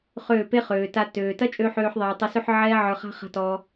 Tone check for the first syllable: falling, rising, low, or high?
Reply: falling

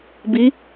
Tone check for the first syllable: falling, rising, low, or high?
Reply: rising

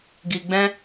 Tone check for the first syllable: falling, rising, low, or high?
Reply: low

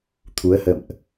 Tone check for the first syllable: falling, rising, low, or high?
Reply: rising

